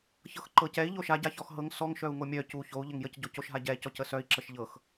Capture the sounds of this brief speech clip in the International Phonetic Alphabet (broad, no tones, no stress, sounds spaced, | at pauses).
ç ɤ x ǃ ɤ c ɛ i̯ ʎ o ʃ a ɟ a ç ɔ x ɦ ɤ ŋ s ɔ ŋ ʃ œ u̯ ŋ o mʲ œ c u ç o u̯ ʎ ə ŋ j ə c ɟ o c o ʃ ɦ a ɟ ɛ c ɔ c ə s œ i̯ ǁ ə ʃ ʎ ɤ x